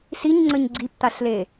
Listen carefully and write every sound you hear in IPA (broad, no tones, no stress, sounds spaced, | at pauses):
s i ɲ ŋ͡ǀ ə ɲ ɡ͡ǀ i p t̪ a ɬ l e